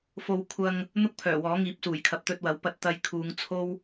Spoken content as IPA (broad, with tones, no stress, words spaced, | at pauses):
fo˨w kʷʰɐ˧ŋ | n̪ʊ˥k̚pʰœː˨˩wɔː˨˥ŋiː˨˥p̚ suː˨˩jkʰɐ˨p̚t̪ɵ˧t̚wɐ˨˥w pɐ˧t̚t̪ɐ˧jkʰuː˨˧ŋt͡sʰo˥w